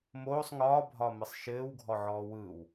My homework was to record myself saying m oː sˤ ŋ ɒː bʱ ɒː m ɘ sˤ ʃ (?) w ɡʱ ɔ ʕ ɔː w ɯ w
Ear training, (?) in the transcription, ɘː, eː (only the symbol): ɘː